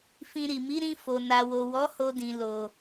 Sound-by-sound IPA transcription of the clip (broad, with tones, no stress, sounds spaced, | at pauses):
f ĩ˧ ɾ i˨ m i˨˦ ɾ ĩ˧ f o˨ n a˨ w o˨ w ɔ˨˦ h o˧ d ĩ˨ l o˨